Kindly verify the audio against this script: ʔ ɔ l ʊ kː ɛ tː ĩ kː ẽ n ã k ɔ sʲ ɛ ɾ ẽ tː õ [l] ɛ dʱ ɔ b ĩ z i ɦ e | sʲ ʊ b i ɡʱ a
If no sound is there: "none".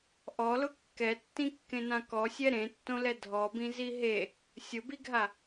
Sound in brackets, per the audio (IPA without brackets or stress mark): l